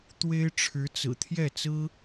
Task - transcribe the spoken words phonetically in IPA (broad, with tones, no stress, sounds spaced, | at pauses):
t̪ w e˥ ɪ̯ ʈ͡ʂʰ ɻ̩˧˥ t͡s ɹ̩˨˩ t̪ʰ j ɛ˥˩ t͡s ɹ̩˥